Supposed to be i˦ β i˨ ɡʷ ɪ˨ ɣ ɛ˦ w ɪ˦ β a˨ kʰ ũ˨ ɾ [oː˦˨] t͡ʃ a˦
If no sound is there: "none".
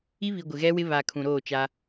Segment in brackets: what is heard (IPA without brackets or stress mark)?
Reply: oː˦˨